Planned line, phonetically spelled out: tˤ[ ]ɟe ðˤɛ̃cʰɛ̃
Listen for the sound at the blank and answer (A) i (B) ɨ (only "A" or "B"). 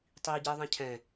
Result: A